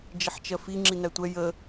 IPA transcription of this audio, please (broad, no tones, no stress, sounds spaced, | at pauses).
d͡ʒ ɪ ħ t͡ʃ ɜ f i ŋ͡ǁ i n æ tʷ ɛ j ə